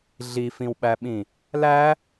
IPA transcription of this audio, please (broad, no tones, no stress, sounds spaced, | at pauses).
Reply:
ɮ i f ĩ w ɓ æ ɓ ĩ | l æ